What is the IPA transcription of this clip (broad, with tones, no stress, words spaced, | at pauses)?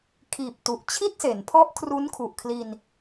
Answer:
kʰiː˨˩p̚tu˨˩ʔ t͡ɕʰi˥˩t̚se˩˦npʰɔ˦˥ʔkʰru˦˥n kʰu˨˩ʔkʰli˧n